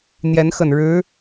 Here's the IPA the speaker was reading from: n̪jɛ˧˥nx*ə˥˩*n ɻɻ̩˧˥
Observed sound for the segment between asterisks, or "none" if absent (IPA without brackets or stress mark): ə˨˩